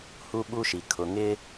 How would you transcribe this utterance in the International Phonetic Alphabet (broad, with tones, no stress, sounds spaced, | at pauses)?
h u˦ ɓ u˦ ʃ i˨ kʰ ʊ˨ ŋ ɪ˦